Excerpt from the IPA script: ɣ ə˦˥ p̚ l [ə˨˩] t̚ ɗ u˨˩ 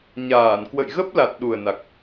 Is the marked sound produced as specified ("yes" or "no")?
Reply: no